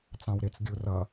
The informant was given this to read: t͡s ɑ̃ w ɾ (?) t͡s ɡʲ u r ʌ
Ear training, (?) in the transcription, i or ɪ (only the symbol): ɪ